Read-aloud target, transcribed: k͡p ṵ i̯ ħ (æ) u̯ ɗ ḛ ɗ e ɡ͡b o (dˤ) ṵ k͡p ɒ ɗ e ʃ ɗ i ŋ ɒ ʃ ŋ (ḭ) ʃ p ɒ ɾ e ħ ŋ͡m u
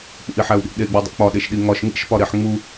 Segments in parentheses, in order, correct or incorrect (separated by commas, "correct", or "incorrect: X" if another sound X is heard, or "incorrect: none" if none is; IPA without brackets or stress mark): correct, correct, correct